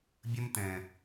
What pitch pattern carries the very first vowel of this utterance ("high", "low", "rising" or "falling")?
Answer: high